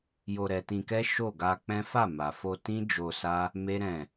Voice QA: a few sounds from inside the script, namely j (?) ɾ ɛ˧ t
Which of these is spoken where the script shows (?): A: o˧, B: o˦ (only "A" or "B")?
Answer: A